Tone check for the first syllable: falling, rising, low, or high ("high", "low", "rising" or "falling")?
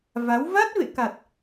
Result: rising